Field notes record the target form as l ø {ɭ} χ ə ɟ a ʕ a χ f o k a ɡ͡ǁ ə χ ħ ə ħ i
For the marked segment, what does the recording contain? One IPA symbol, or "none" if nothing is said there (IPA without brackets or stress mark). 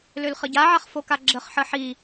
l